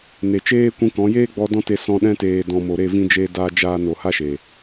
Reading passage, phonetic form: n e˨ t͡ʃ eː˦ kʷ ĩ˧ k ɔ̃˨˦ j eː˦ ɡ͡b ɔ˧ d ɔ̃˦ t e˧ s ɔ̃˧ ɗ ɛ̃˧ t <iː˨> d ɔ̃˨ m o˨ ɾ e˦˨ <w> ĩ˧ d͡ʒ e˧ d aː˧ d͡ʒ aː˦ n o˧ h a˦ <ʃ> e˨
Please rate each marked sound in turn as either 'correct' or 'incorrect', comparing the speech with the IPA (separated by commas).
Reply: incorrect, incorrect, correct